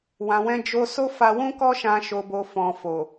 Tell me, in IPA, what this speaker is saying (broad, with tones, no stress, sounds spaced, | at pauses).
w ã˨ w ɛ̃˧ d͡ʒ o˧ s o˦ f a˧ w ũ˦ k ɔ˦ ʃ ã˧ ʃ o˨ b o˨ f ɔ̃˨ f o˨